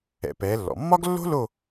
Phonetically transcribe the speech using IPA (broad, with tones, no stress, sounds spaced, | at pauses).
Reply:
ɛ̰˩˧ p ɛː˩˧ lː ɔ̰˩ mː ɒ˥ ɡ lː o̤˥ l o˦˨